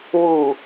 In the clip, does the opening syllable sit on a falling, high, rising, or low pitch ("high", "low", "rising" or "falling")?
low